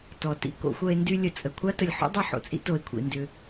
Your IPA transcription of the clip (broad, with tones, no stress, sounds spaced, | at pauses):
t ɔ˨ t ḭ˨ k o̰˦ xʷ ɐ˦ e̯ n d y˦ lʲ ə˨ t͡sʼ ə˩ kʷʰ a˥ t ə˨ lʲ ħ o̰˥ dˤ ɐ˦ ħ o̰˩ t͡sʼ ḭ˦ t o˨ e̯ kʷʰ ḭ˩ n d ʏ˨